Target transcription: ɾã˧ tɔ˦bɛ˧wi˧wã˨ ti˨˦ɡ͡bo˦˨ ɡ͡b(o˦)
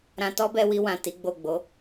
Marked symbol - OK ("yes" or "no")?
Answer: no